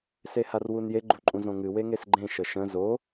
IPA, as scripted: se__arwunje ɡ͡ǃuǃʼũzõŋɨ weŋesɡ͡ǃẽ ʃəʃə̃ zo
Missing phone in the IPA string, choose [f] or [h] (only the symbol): h